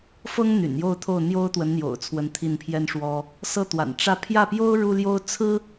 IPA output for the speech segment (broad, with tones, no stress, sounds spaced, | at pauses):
f ɤ˥ ŋ n̪ y̰˨˩ n j o˥˧ ʊ̯ t̪ʰ o˥˩ ʊ̯ n̪ j o˥ ʊ̯ t̪ w ə˧˥ n n̪ j o̰˨˩ ʊ̯ t͡sʰ w ə˧˥ n t̪ʰ i˥˩ n pʰ j ɛ˥ n ʂ w ɔ˥ | s ɤ˥˩ t̪ w a̰˨˩ n ʈ͡ʂ ä˥˧ pʰ j ä˥˩ p j o˥ ʊ̯ ɻ u˥ l j o˥ ʊ̯ t͡sʰ ɹ̩˥